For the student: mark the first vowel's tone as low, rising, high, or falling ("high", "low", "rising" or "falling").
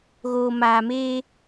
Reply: low